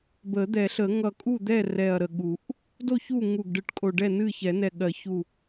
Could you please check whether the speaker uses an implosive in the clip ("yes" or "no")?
yes